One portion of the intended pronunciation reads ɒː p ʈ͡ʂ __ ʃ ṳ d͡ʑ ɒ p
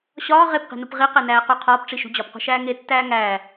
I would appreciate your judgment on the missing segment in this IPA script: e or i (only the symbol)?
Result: i